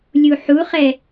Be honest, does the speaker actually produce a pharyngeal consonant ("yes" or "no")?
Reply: yes